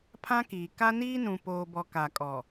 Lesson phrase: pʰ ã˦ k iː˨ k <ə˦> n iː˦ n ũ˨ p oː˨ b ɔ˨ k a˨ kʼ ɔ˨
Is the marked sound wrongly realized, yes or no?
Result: yes